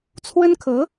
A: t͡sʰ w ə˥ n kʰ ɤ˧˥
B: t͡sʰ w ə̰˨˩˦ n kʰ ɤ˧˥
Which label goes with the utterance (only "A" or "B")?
A